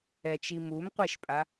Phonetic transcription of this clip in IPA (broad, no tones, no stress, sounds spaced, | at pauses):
ɛ t͡ʃ i m u m qʷ e ʃ pʼ a